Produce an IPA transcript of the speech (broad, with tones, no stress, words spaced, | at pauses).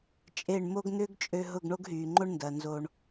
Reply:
t͡ʃʼe˦˨ɳmo˦ɡ n̪ʏː˦ɡt͡ʃʼø˧ ɦʊ˦˨ɡɳo˦ɡɦyː˨ŋ͡ǃo˦ɳ ndɐ˨ nzo˧ɳ